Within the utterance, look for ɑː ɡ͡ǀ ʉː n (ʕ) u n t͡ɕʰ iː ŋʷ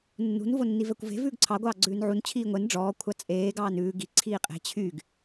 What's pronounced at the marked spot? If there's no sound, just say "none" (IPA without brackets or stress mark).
ʕ